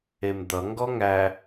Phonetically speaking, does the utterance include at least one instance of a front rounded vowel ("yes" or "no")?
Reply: no